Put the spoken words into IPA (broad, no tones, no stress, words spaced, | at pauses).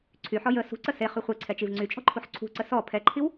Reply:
ǀʰyħɔ jə sṳǀə seχy χʷeǀʰɛt͡ʃiv ŋ͡ǀyt͡ʃʼɔ̤ǃʰuħ ǀʰṳǀə sɔ pʰɛǃʰiw